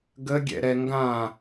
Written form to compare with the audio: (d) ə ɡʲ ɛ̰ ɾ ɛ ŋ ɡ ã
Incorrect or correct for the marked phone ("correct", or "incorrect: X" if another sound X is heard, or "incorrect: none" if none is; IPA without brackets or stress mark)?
incorrect: ɡ